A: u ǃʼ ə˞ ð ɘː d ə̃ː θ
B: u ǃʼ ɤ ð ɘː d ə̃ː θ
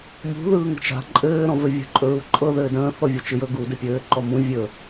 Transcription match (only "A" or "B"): B